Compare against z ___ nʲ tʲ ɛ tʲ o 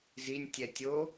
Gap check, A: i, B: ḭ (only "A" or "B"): A